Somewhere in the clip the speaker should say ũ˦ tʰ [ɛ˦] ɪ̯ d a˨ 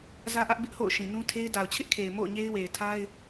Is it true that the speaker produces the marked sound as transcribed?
no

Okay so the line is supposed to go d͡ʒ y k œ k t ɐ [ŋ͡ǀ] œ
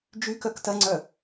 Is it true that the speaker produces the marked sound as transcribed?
yes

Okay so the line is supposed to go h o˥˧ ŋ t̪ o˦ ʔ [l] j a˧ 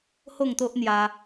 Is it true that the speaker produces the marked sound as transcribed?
no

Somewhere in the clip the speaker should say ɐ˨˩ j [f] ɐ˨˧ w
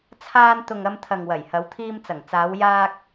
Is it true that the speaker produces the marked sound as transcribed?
no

